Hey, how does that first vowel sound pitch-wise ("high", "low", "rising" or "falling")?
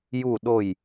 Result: falling